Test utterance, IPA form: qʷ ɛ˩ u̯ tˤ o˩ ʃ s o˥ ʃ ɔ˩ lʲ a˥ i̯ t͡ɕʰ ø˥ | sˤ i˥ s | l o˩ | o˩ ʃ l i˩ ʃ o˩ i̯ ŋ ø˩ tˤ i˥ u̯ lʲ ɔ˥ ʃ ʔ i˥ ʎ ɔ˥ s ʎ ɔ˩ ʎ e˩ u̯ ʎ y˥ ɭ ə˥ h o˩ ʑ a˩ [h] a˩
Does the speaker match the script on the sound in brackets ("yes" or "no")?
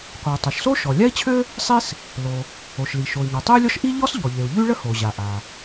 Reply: no